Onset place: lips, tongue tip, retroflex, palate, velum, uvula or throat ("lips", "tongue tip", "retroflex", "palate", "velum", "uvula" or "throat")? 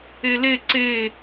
tongue tip